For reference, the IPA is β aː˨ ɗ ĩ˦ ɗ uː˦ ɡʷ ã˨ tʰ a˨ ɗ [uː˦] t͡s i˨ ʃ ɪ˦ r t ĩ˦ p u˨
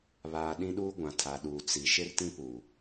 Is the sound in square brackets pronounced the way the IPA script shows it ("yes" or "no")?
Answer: no